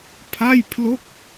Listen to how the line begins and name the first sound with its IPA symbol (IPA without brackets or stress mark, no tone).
pʰ